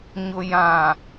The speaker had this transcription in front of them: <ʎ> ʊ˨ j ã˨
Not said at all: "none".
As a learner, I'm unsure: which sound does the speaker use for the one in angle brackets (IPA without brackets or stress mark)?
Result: ɲ